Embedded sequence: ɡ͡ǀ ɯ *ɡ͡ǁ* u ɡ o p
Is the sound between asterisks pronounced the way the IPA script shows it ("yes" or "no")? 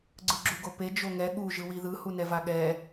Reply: yes